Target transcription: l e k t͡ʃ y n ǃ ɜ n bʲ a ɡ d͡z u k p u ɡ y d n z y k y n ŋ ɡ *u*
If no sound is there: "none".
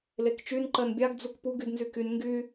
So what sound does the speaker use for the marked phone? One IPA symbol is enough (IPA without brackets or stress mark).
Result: y